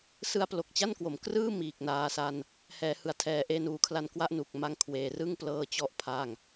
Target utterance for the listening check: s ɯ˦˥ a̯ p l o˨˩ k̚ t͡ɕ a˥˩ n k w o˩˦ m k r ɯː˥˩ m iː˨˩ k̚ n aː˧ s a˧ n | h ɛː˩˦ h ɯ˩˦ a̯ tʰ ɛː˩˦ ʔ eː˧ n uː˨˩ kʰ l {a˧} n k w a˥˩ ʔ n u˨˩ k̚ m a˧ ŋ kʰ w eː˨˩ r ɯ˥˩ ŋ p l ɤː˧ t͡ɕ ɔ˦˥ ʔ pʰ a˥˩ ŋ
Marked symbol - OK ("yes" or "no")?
yes